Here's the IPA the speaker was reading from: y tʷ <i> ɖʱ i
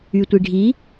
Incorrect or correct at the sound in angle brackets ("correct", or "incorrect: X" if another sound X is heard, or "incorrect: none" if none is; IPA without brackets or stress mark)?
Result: correct